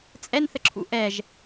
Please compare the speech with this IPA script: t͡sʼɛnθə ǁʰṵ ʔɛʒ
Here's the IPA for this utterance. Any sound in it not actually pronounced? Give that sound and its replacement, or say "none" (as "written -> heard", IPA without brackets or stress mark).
none